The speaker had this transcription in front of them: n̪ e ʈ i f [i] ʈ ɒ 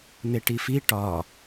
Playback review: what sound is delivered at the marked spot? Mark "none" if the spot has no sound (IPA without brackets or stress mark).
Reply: i